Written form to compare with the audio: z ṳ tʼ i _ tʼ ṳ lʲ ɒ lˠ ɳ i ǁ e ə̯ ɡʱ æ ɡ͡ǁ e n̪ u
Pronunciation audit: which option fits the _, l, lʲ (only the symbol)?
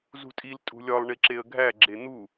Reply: l